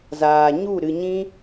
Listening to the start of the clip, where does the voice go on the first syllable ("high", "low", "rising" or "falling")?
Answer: low